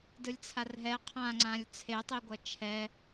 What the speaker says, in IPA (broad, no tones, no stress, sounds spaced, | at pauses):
d ɯ lʲ t͡sʰ a r ɦ ɛ qʰ ã ŋ͡ǀ ã lʲ t͡sʰ e tˤ i ɡʷ ʌ t͡ʃʰ ɛ